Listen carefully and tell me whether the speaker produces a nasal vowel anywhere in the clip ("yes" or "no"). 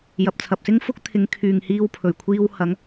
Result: no